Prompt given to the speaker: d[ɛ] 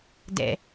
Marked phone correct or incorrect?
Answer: incorrect